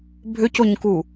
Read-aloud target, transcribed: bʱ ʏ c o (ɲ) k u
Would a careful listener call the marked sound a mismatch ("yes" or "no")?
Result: no